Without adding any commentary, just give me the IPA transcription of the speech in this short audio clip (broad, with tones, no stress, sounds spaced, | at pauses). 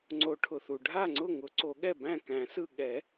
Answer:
ŋ͡ǀ o˨˩˦ ʈʰ ʊ˩ θ u˩ ɖʱ a˥˩ ŋ͡ǀ ʊ˥˩ ŋ ʊ˨˩˦ ǀ o˨˩˦ ɠ ɛ˥˩ b æ̃˥˩ k æ̃˨˩˦ s ɯ˥˩ ɠ ɛ˨˩˦